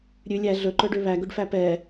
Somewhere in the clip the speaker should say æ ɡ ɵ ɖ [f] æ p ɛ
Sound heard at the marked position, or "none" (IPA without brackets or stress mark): f